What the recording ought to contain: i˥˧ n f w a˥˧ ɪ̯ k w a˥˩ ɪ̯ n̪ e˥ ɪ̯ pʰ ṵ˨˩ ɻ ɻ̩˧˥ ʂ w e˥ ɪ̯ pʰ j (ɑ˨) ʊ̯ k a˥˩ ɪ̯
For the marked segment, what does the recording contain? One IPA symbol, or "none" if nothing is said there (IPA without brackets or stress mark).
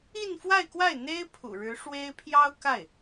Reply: ɑ˥